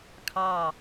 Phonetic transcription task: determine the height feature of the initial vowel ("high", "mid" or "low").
low